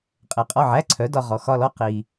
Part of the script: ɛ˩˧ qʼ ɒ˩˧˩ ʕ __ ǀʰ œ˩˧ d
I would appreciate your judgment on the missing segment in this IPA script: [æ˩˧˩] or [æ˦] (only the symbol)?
æ˩˧˩